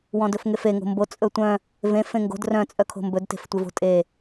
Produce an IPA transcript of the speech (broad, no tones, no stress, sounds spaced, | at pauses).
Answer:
w ɔ̃ d ɵ f ŋ e f e ŋ o̤ m b o t͡sʼ ɵ tʷ œ̃ | v ẽ f ẽ ŋ ɡ o̤ d r œ̃ t͡sʼ œ kʰ o̤ m b ɵ d t e̤ f tʷ ɪ v o̤ tʼ e